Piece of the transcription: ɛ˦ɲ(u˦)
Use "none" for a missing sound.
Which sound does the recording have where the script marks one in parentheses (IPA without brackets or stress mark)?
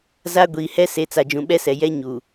u˨